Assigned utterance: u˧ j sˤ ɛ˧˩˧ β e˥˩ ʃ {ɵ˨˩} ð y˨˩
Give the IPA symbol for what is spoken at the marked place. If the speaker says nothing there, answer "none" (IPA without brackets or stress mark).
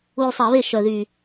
œ˨˩